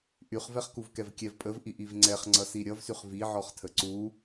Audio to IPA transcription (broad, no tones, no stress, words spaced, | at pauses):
ʔyχvɛχkuv kɛvkʲɛvpʼəvʔi ʔivŋ͡ǀɛχŋ͡ǀʌsi ɾʲʌvsyχ viʕɔχtʰə ǀu